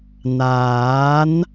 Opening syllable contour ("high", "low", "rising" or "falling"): rising